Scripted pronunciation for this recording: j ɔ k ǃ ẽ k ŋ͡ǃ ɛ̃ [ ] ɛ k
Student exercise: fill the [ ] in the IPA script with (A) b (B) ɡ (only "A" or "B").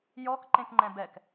A